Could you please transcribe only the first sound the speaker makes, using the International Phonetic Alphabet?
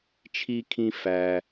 t͡ʃʰ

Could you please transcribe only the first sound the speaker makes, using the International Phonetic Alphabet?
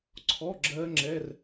ǀʰ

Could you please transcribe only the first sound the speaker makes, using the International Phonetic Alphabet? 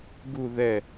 ɡ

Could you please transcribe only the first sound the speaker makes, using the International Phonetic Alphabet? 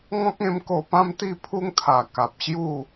ŋ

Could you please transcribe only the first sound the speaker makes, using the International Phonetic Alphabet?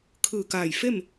kʰ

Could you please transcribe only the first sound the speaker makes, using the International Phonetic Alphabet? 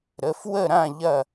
ɾ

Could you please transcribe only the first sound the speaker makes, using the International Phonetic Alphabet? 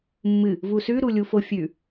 mː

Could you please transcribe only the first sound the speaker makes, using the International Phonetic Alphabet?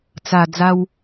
t͡s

